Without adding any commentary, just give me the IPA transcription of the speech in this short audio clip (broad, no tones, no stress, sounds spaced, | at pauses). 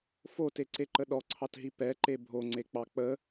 f o t e ǀ e ǃ ə ɗ ɔ ǀʰ ɑ t ɦ i p ɛ ǃ e bʱ o ŋ͡ǀ e k͡p ɑ k͡p ə